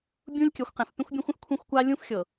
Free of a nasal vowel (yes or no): no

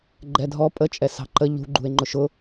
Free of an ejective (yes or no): no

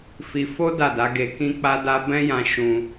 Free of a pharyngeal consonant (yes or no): yes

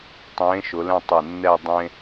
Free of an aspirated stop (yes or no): yes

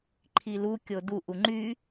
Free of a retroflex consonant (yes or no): yes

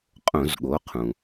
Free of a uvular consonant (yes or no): no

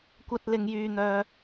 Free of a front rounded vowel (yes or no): no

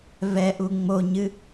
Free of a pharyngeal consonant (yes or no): yes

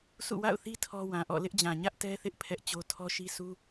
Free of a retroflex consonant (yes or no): yes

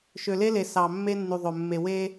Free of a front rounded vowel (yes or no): no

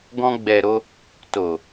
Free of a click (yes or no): yes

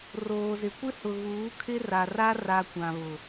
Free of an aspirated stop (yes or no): no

